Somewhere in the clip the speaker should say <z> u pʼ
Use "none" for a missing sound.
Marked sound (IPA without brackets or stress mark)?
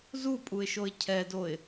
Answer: z